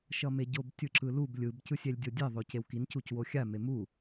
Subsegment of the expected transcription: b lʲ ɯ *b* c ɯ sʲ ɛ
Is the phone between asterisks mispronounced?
no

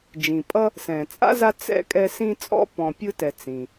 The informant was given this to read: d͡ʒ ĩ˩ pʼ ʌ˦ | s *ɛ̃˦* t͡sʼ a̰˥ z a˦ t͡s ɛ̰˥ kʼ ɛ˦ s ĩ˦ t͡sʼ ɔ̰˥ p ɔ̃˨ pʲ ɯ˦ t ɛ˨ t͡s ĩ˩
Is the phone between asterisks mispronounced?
yes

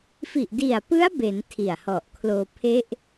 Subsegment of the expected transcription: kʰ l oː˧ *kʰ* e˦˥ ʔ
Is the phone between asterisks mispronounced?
yes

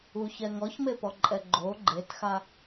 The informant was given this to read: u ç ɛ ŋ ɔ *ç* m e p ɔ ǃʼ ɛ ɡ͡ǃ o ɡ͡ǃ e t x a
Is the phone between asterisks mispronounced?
no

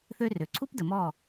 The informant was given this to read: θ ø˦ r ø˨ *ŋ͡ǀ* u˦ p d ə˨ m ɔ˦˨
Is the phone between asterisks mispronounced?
yes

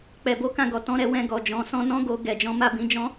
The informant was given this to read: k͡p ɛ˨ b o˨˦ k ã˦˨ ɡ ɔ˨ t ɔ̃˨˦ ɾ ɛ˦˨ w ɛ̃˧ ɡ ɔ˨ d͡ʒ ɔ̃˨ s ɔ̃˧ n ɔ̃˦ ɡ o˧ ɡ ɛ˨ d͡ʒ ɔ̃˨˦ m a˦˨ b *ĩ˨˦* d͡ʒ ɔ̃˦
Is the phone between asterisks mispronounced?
no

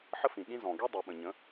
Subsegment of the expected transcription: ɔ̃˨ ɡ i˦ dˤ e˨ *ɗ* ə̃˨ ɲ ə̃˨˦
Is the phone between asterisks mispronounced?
yes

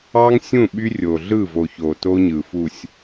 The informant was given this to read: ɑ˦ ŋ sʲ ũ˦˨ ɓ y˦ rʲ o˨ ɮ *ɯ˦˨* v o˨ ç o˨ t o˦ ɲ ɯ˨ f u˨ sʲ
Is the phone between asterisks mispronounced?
no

